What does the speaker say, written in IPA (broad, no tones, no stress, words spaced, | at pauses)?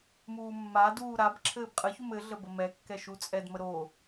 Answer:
muːmːaduː ɾab ǁʰɘːbqʼəçum ɘɮə bəmɛkːɛ ʃut͡sʼɛdmə ɾo